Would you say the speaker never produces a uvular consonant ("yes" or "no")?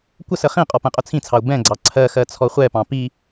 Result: no